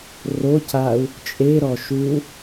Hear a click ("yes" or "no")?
no